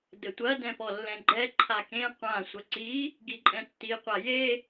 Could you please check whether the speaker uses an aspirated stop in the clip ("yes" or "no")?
yes